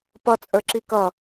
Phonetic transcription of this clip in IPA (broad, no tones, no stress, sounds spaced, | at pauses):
p ʌ t͡sʼ ə˞ ǁ i k ʌ